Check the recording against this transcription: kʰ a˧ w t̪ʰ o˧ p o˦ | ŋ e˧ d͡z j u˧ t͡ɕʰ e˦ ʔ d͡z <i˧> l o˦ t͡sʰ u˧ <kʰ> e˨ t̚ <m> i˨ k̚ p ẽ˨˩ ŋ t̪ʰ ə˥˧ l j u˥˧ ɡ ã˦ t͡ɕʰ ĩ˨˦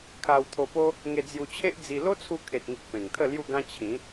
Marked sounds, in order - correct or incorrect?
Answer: correct, correct, incorrect: ŋ

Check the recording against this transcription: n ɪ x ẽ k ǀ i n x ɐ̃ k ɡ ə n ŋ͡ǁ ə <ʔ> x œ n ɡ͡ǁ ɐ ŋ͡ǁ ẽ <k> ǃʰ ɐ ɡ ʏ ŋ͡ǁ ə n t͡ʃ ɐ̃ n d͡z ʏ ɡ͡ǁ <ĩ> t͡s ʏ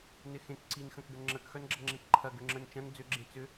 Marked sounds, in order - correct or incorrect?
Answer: incorrect: k, correct, incorrect: ẽ

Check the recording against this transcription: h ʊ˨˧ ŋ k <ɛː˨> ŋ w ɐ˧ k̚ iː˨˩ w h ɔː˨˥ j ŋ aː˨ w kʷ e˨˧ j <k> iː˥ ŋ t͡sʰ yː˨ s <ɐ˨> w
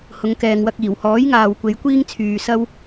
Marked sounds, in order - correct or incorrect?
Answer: correct, incorrect: kʷ, incorrect: ɐ˥

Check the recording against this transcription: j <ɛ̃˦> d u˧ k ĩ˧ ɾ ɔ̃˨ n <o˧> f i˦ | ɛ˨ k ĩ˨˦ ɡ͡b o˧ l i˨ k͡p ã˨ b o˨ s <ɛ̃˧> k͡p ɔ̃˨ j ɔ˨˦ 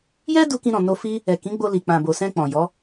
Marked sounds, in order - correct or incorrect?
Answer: incorrect: ɛ˦, correct, correct

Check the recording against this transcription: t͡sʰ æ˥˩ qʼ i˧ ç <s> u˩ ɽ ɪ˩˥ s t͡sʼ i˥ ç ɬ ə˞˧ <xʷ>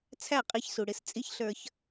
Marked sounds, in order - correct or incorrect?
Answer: correct, incorrect: ç

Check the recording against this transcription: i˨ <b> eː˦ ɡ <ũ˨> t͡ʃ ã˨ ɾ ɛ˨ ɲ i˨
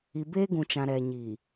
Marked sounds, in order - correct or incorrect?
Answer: correct, correct

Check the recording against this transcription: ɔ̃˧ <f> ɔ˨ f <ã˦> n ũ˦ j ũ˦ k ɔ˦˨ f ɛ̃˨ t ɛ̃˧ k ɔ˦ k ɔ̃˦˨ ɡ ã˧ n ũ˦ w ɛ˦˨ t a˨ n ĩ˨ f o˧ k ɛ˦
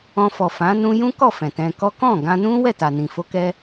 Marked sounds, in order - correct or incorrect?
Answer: correct, incorrect: ã˨˦

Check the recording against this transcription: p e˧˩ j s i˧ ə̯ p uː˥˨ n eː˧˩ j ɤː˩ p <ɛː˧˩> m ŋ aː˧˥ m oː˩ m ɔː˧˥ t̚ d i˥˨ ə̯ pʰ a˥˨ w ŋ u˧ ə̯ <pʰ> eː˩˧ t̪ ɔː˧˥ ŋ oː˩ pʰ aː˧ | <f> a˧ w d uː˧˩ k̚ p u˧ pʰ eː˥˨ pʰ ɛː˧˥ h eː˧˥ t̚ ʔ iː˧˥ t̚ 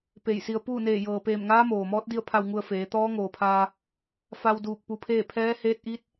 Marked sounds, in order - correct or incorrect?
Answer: incorrect: eː˧˩, incorrect: f, correct

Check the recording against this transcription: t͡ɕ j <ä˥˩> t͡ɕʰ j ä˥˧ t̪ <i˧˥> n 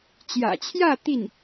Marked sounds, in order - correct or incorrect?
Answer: incorrect: ä̰˨˩, incorrect: i˥˩

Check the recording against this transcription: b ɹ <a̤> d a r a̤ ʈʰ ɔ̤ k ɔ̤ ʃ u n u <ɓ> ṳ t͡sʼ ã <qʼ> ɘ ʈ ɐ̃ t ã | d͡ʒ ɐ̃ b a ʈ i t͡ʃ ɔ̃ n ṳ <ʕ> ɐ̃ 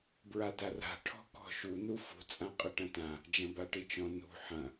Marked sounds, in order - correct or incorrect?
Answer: incorrect: a, incorrect: f, correct, incorrect: ħ

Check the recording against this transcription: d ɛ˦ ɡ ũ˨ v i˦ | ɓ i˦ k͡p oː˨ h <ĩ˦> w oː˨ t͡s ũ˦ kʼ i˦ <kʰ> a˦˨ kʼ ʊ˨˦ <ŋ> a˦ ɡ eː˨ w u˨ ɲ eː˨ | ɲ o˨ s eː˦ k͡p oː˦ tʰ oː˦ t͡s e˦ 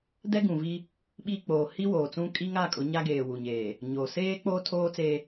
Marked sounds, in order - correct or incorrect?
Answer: incorrect: i˦, incorrect: ŋ, incorrect: ɲ

